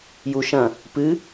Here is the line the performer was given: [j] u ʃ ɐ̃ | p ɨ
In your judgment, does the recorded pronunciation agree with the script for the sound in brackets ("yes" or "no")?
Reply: yes